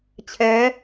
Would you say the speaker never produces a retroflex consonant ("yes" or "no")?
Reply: yes